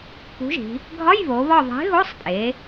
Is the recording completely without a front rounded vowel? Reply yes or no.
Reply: yes